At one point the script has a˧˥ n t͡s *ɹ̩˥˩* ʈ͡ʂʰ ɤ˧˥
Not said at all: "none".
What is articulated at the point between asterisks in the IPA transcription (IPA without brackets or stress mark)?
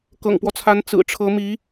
ɹ̩˨˩